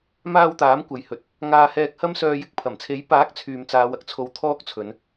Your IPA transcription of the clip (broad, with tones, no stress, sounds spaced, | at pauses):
m aː˧ w t̪ aː˨˥ m kʷ ɐ˨ j h ɵ˨ t̚ | ŋ aː˧ h ɛː˧ k̚ h ɐ˥ m s œː˧ j ɪ˨˥ k̚ pʰ ɐ˨˩ m t͡sʰ e˨˥ j p aː˨˥ k̚ t͡sʰ yː˨ m t͡s aː˨˧ w ɐ˧ k̚ t͡sʰ o˧ w t̪ʰ ɔː˥ k̚ t͡sʰ ɵ˨˧ n